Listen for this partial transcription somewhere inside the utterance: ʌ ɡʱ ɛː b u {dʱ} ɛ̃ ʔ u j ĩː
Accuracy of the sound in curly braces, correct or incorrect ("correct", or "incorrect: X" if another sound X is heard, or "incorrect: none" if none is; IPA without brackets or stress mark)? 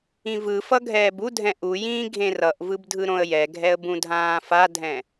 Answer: correct